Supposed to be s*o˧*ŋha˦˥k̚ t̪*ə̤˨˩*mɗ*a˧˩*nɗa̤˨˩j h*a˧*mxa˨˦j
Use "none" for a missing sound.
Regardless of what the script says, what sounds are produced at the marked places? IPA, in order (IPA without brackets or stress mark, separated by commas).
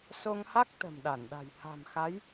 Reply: o˧, ə̤˨˩, a˧˩, a̤˨˩